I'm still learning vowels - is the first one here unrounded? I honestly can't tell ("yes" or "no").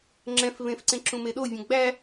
yes